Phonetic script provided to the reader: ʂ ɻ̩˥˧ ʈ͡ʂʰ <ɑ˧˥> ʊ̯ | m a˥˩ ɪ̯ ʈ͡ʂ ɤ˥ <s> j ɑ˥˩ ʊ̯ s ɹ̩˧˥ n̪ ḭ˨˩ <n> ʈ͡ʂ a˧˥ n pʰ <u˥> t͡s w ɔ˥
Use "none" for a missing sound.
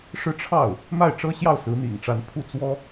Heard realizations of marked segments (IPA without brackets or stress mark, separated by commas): ɑ˥˩, ɕ, ŋ, u˥˩